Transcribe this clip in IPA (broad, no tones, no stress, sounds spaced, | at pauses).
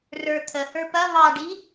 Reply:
r ə˞ t̪ʰ ə h ə˞ p ɐ β ɑ ɖ i